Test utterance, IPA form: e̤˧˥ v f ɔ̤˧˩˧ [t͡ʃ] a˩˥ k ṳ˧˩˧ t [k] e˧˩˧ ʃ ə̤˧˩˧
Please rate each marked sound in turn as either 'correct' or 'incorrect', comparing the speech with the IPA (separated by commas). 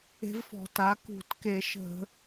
incorrect, correct